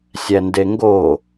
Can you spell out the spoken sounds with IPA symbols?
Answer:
sʲ æ n d e ŋ ɡ o

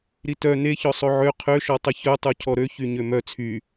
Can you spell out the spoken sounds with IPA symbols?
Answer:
ɾ i t œ n e ç ɔ sˤ o ʕ ø qʰ ø ʃ ɔ tˤ ə ç œ tˤ u cʰ ɔ ɾ ø ç y ɲ ø m œ t͡sʰ y

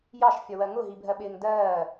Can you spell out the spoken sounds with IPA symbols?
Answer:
j ɑ ʃ fʲ ɒ w ɜ ŋ ʊ ɦ i bʱ ɜ ɓ ɪː ŋ d ɜː

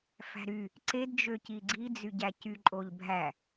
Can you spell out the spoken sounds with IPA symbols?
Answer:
f æ̤ ɾ y | ǀ e d d͡ʒ ø c i ɡ͡ǀ i d͡z y ɟ æ c y ǃʼ o ʎ bʱ æ

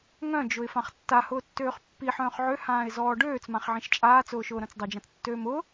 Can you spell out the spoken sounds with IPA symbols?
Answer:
ŋ œ̃ d͡ʒ ʊ ɪ̯ f ã χ tː a h ʊː tː øː χ pː i ħ œ̃ː χ ʕ ø h ãː ɪ̯ z ɔː ɖ øː t͡s m ã χ ʕ ĩ ʃ t͡ʃʼ aː t͡s ʊː ʃ ʊː ɾ œ̃ t͡s dˤ o d͡ʒ ã t͡s tː øː m ʊ

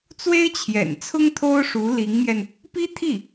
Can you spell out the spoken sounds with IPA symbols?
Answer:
t͡s w e˥ ɪ̯ t͡ɕʰ j ɛ̰˨˩ n t͡sʰ ʊ˥ ŋ t̪ʰ o˥ ʊ̯ ʂ u˧˥ l i˧˥ ŋ m j ɛ˧ n | p i˥ t̪ʰ i˥˩

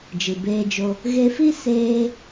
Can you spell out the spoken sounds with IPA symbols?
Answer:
d͡ʒ ɨ˨ b eː˧ d͡ʒ o˧ | ɣ e˧ f i˦ s eː˦

